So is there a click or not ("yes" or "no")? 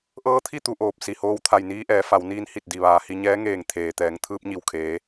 no